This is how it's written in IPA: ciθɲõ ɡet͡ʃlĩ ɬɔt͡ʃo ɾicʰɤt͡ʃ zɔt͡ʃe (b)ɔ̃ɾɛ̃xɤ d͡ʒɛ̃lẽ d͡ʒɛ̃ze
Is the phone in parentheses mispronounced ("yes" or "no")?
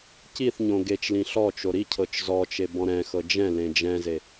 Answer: no